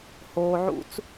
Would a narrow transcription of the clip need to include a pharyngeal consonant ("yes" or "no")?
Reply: yes